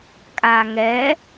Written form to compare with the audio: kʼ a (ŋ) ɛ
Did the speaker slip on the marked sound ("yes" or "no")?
no